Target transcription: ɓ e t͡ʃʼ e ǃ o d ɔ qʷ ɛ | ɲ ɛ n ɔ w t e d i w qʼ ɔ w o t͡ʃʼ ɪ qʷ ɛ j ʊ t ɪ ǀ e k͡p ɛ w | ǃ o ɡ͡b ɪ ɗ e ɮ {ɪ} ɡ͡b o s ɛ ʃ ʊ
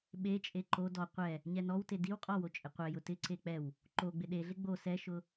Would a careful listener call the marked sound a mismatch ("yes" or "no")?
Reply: no